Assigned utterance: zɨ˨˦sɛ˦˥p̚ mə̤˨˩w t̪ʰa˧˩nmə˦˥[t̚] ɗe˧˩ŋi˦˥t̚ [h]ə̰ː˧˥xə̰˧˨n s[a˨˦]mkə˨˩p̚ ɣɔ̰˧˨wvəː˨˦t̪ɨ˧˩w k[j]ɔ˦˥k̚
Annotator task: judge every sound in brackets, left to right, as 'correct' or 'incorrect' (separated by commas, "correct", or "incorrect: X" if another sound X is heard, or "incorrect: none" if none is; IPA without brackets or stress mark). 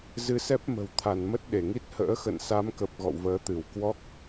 correct, correct, correct, incorrect: w